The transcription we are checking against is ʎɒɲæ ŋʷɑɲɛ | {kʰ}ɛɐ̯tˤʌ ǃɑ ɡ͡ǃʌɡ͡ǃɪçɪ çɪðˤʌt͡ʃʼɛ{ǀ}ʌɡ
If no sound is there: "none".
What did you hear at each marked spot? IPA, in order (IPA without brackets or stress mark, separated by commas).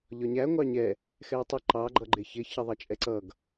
x, ǀ